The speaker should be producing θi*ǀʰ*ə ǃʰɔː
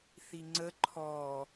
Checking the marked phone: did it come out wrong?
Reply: yes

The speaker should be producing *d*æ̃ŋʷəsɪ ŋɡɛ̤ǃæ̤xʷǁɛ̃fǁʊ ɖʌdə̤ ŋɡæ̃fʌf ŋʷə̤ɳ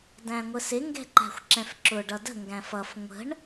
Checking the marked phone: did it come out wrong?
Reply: no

